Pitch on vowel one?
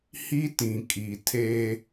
high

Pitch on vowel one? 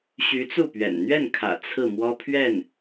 rising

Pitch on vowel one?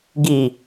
low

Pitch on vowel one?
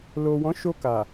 low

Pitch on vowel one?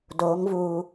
rising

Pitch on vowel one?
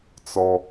high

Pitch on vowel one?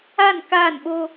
falling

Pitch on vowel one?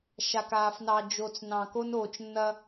low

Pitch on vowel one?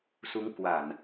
rising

